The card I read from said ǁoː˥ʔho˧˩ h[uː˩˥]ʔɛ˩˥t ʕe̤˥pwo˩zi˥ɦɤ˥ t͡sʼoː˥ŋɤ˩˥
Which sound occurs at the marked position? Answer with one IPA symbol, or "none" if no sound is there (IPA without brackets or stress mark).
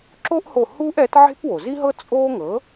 uː˥